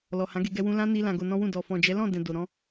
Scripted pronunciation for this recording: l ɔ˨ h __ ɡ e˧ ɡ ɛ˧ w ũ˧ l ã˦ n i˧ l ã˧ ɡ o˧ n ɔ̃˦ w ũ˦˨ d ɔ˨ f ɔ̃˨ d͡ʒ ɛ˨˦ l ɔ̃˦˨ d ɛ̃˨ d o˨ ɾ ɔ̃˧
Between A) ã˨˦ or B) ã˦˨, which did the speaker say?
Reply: A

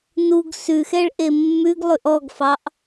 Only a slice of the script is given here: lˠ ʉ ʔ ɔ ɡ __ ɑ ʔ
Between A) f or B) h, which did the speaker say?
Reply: A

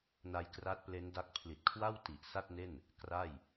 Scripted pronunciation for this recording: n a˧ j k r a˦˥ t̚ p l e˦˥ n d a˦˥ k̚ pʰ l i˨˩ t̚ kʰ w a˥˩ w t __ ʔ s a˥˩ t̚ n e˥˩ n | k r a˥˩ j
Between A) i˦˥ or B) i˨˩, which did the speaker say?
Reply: B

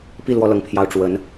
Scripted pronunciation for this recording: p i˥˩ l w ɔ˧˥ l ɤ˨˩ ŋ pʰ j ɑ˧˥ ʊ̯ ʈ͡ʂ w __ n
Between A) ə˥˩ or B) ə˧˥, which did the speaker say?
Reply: B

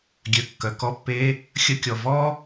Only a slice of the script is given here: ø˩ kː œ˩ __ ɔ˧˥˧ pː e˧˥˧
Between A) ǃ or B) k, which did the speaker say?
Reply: B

